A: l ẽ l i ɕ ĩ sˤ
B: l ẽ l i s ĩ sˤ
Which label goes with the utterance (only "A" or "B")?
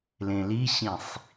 A